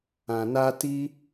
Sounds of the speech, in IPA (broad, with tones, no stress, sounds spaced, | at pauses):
ã˨ n a˧ t i˦